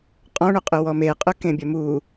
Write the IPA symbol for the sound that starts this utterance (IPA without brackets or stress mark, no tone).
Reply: qʼ